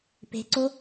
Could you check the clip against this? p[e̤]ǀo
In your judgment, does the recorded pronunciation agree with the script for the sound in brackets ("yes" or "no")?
yes